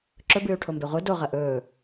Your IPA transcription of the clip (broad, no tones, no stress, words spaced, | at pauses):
ǁɵbɨːu̯ʈʰombe ʁʷɨ do ʁɐʔɵː